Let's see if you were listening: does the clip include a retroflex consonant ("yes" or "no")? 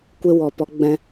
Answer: no